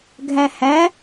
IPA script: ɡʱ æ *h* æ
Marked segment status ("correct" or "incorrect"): correct